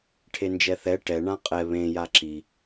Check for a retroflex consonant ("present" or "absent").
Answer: present